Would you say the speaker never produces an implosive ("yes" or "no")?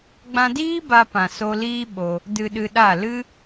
no